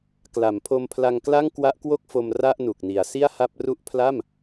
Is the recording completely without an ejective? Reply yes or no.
yes